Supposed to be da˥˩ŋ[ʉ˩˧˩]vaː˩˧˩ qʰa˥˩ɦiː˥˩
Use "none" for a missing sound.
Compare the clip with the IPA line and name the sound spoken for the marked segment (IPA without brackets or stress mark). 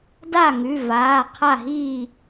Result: ʉ˩˧˩